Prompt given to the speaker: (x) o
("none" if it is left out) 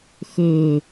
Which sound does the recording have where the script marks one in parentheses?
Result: x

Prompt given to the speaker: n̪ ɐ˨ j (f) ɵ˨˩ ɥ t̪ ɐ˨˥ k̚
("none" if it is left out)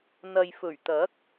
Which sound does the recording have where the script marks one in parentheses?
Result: f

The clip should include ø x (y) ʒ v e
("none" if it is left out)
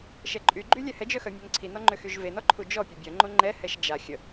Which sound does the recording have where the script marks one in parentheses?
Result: y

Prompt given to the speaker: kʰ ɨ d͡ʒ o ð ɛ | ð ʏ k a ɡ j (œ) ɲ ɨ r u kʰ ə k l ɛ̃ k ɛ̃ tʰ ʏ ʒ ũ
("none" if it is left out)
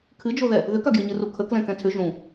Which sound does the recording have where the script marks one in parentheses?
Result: ə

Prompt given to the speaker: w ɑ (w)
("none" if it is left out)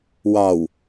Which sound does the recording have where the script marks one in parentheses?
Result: w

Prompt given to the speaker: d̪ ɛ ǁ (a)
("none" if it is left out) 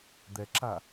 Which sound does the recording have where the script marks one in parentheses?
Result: a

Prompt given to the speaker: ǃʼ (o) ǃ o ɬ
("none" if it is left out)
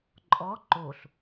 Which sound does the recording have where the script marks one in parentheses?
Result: ɔ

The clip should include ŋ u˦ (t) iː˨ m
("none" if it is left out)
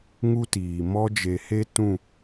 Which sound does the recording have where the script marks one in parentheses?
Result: t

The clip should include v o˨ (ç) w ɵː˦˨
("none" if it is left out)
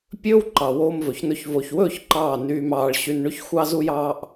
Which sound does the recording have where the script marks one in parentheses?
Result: ç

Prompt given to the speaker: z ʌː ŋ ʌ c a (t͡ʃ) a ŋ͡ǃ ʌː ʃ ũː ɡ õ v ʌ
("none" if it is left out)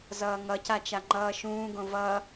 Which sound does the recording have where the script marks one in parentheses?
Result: t͡ʃ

